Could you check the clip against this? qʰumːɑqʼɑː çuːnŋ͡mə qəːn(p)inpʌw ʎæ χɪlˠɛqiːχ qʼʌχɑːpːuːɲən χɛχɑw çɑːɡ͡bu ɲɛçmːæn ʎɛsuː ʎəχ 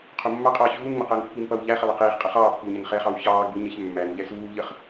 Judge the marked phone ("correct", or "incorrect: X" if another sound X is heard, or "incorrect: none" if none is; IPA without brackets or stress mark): incorrect: pː